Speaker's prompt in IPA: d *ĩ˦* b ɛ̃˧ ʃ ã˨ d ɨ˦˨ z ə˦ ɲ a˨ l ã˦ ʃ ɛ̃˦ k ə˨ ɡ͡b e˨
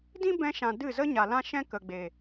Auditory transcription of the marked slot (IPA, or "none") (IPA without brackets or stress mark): ĩ˦